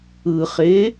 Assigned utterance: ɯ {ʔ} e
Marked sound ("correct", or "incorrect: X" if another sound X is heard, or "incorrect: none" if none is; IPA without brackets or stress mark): incorrect: χ